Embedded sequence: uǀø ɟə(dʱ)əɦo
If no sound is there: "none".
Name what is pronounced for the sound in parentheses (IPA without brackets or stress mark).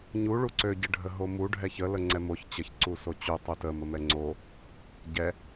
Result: ɖʱ